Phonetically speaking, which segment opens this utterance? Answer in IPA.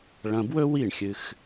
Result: ɭ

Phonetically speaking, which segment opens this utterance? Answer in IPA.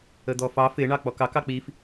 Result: ə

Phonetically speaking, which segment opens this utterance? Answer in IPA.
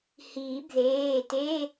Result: h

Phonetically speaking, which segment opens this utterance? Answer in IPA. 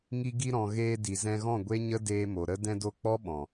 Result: ŋ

